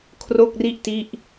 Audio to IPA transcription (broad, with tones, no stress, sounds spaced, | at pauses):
kʰ r o˥˩ k̚ r i˥˩ ʔ t i˥˩ ʔ